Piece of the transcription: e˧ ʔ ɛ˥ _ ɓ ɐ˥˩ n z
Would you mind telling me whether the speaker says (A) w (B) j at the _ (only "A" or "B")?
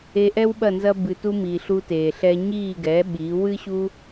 A